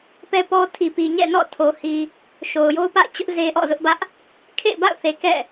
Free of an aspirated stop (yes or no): no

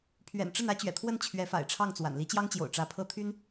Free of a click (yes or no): yes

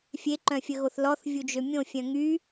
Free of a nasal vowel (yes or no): no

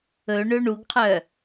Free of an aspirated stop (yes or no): no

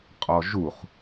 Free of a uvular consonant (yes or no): no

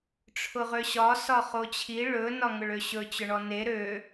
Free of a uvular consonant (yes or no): no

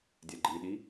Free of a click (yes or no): no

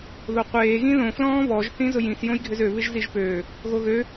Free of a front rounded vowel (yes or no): no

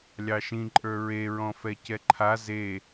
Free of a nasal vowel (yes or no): no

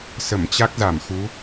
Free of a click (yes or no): yes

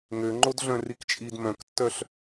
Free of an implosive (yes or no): yes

